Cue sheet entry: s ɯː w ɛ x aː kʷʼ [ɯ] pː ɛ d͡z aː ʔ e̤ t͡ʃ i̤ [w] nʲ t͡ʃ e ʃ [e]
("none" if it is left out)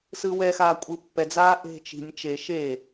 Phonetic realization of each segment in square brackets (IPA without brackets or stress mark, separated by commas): ɯ, none, e